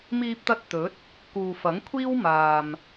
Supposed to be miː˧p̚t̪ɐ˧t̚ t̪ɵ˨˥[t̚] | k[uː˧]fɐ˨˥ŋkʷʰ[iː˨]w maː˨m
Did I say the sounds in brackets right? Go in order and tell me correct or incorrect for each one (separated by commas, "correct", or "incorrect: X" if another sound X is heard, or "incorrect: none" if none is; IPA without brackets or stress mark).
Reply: correct, incorrect: uː˨, incorrect: iː˥